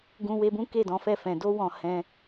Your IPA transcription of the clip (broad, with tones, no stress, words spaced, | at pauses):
ɡũ˧we˧bũ˦ ke˦˨dɔ̃˨˦fɛ˦˨ fɛ̃˨do˧wɔ̃˨ hɛ̃˧